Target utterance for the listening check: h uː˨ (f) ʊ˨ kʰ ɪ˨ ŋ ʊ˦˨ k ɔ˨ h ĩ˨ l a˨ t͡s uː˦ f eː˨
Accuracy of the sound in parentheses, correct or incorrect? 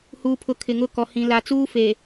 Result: incorrect